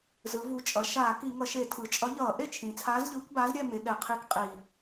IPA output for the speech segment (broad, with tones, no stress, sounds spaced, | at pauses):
z ɯ˩˧ v u˨˩ t͡ʃʼ ʌ˩˧ ʃ aː˧˩˧ k i˧˩˧ ŋ ʌ˧˩˧ ʃ e˧˩˧ tʰ ɯ˩˧ t͡ʃʼ ʌ˨˥ ʎ ʌː˧˩˧ ʔ e˥˨ t͡ʃʰ ĩ˩˧ t͡sʰ aː˨˥ z ʎ ɯː˨˥ k b a˨˥ z ɾʲ ɛ˥˨ m e˩˧ ɠ ɛ˨˩ qʰ i˧˩˧ k qʼ i˨˩